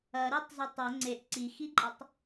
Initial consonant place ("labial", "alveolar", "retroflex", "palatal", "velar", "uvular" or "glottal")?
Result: alveolar